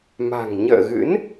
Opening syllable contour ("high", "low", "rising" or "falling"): low